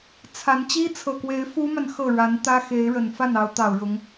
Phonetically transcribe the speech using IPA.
t͡sʰa˧˥n t͡ɕi˥t͡sʰɤ˨˩kwe˧˥ɪ̯ fu˥ma˨n xɤ˥˩ ɻa˧˥nt̪ä˥xe˧˥ɪ̯ ɻə˨˩n fa˥˩n ɑ˧˥ʊ̯t̪ɑ˨˩ʊ̯ɻʊ˧˥ŋ

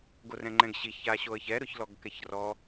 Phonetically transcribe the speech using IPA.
ɡorɛ̃ŋ͡ǃɛ̃ɡɕiç aɕoə̯çɛ ɾʊçlɔɡkɛçrɔ

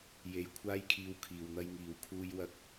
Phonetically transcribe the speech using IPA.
je˨j kʷʰaː˧jkʰiː˨w kʰiː˨wn̪ɐ˧jŋiː˨˧w kʰuː˧jwɐ˧k̚

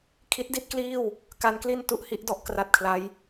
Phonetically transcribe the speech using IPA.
kʰi˦˥t̚di˥˩t̚kliː˥˩w | ka˦˥nkli˥˩n tu˦˥ʔhi˦˥ʔdɔ˥˩ʔ kra˦˥t̚kʰla˦˥j

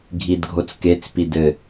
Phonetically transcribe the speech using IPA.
ɡʱidɡʱot͡sket͡s pidɘ

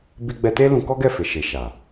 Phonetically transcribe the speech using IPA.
bi˧ɡ͡bɛ˧te˦ lũ˧kɔ˦ɡɛ˦˨ fe˨ʃe˨ʃa˨

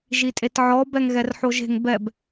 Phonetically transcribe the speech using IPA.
ʒitʼetʕɔ bɛŋɣɛrħoʒe̤ŋ bɛb

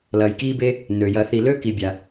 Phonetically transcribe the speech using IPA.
lɐː˨jkiː˥be˥ | nø˩jɐ˨θi˨lø˥ ki˨bʲa˩

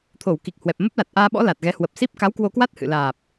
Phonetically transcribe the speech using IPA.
t̪ʰo˧˩w ki˨˩k̚hwɛ˨˩p̚ mə˦˥p̚la˨˩t̚ʔaː˧ɓɔ̰˧˥ la˨˩t̚ɣɛ˨˦ hwə˨˩p̚ si˦˥p̚ka˨˦wkwo˧kwa˦˥t̚ hɨ̰˧˨laː˨˩p̚

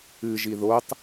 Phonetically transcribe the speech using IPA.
ɨʒi ðotˤ

